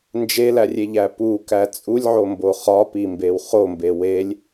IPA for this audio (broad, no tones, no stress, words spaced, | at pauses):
nd͡ʒelærʲeʎæ pukæ t͡sʼulʲʕombo χɒpimbew χombe welʲ